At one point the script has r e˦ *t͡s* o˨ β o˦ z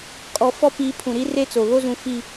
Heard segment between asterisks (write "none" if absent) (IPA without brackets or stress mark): t͡s